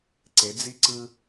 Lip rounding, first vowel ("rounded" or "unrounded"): unrounded